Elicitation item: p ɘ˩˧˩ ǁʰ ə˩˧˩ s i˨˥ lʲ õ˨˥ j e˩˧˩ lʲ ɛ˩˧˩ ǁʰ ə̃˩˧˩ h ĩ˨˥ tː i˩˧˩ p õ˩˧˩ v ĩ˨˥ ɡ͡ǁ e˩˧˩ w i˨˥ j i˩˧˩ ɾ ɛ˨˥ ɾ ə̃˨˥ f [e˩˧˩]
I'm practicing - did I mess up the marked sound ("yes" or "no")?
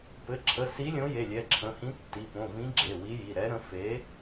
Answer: yes